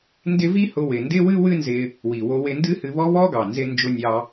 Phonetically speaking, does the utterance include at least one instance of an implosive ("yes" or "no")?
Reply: no